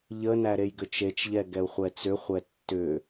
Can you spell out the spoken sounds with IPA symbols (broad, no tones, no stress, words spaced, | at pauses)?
ʎənæ ɾejɡʏt͡ʃet͡ʃʎɛ ɡɛu̯χʷɛt͡sʏχʷɛ tːʏ